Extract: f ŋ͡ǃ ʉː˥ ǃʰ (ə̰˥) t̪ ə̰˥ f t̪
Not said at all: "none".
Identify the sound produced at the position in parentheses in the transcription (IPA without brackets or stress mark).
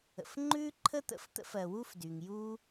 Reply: ə˥